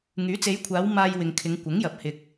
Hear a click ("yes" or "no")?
no